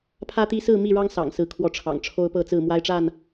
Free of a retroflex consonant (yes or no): no